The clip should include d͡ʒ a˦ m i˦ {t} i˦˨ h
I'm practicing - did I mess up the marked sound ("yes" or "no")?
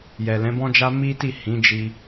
no